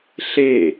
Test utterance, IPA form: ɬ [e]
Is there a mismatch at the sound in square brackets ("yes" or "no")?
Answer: no